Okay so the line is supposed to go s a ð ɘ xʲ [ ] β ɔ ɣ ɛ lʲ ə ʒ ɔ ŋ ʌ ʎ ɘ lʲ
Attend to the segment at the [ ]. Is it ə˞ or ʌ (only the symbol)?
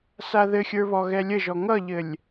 ə˞